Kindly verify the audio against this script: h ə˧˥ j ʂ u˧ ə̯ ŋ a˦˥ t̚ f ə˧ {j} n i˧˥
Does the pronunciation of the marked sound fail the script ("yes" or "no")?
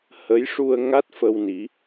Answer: yes